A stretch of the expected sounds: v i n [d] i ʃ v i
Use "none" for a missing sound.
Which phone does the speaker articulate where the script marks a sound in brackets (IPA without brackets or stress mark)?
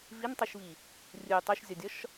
tˤ